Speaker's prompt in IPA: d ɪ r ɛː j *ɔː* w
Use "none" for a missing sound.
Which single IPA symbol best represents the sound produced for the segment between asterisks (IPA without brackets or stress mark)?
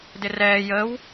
əː